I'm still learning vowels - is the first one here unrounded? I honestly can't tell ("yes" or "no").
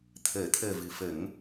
yes